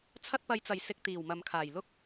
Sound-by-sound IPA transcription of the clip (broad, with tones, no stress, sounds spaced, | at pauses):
t͡sʰ ɐ˧ t̚ p ɐ˨ j t͡s ɐ˨˩ j s ɪ˧ k̚ t̪ iː˨˩ w m ɐ˨ m kʰ aː˨˩ j l ʊ˥ k̚